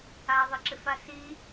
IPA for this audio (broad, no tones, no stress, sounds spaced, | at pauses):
a ðˤ ɪ ǁ ɪ f a s i